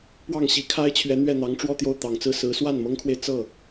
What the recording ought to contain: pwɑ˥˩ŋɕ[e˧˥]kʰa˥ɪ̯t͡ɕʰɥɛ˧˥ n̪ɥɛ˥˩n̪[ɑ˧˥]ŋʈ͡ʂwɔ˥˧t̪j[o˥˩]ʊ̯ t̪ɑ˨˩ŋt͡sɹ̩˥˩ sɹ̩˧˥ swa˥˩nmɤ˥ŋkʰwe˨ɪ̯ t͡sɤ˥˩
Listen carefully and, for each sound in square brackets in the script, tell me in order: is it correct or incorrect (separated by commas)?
incorrect, correct, correct